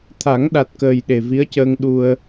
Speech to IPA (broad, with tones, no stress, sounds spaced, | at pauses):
t̪ʰ a˨˩˦ ŋ ɗ a˨˩ t̚ k əː˨˩ j ɗ e˨˩ v i˧˥ ə̯ c əː˧ ŋ ɗ u˧ ə̯